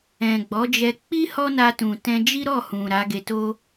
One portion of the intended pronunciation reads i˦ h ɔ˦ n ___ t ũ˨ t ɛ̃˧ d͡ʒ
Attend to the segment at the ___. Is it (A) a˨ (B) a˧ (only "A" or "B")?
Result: B